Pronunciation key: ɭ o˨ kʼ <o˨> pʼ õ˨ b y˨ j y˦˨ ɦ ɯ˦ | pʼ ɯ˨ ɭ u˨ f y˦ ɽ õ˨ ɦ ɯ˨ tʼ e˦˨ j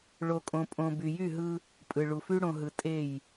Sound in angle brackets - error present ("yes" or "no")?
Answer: yes